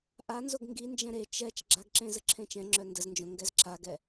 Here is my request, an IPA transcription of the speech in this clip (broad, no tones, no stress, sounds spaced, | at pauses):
ʔ a n z o ɡ ŋ ɡ i n d͡ʒ ɛ̃ ɾ e t͡ʃ ɛ t͡ʃ ɡ͡ǁ a ɡ ǁ ẽ z ə ǁʰ ẽ t͡ʃ ɛ̃ ŋ͡ǁ œ n d ə z n d͡ʒ õ ŋ ɡ ɛ z ǁ a ɡ ɛ